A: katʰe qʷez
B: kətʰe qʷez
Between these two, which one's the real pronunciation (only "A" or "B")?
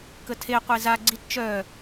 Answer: B